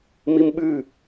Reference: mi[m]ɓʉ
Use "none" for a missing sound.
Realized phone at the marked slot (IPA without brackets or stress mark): m